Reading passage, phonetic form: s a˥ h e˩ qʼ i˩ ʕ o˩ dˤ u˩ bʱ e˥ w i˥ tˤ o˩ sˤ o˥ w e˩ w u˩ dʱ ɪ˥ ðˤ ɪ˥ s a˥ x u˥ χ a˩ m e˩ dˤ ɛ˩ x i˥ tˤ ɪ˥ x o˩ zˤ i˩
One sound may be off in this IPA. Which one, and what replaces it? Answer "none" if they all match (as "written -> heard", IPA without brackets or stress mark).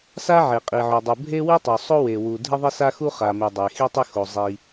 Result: h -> ʕ